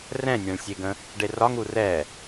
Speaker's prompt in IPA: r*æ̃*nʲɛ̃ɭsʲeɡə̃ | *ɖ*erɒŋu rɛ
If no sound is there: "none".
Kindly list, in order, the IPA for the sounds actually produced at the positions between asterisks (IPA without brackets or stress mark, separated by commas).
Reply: ɛ̃, ɖ